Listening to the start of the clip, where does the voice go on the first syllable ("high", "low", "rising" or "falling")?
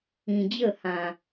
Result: low